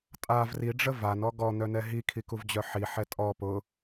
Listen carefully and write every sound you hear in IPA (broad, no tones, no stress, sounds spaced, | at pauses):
tʼ a v r i ɖ͡ʐ ə v a n ɔ ɡ ɔ n̪ œ n ɛ ɦ i kʰ i k u v d͡ʑ œ ħ i ħ ɛ tʼ ɔ p ʊ